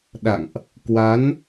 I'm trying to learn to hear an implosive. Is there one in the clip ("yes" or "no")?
yes